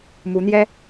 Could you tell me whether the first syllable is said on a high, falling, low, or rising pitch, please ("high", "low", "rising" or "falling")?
rising